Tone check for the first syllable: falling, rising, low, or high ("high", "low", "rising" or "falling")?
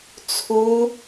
high